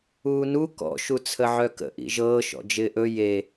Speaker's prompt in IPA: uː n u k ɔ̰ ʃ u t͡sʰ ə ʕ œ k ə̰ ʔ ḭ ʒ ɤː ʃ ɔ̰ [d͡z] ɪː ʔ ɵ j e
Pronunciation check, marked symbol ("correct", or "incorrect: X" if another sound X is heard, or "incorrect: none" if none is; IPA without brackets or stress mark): incorrect: d͡ʒ